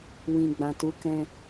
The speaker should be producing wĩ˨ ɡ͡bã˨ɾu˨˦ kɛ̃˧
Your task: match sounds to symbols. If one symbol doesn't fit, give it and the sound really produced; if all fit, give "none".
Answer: ɾ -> t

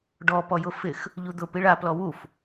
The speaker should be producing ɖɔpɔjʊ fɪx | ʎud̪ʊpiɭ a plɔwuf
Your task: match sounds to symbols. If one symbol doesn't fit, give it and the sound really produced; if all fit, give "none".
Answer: none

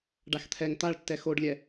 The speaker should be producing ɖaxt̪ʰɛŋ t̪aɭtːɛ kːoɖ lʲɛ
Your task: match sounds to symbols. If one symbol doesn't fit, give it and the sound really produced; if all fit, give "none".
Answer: kː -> x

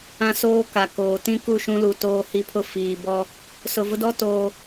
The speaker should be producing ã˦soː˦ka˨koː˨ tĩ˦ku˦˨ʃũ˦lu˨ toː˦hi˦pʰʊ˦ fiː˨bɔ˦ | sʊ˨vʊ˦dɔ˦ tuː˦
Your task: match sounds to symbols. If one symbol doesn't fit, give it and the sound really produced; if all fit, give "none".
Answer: uː˦ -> oː˦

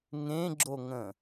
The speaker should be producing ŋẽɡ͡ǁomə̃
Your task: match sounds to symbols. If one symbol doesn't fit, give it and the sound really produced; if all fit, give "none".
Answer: m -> ŋ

